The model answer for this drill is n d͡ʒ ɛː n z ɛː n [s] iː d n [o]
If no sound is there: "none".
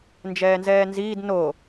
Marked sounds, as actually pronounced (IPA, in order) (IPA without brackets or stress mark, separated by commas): z, o